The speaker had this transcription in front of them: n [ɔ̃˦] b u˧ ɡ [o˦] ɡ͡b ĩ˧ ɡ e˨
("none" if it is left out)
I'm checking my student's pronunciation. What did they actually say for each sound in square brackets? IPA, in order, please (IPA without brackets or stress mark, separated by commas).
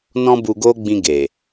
ɔ̃˦, o˦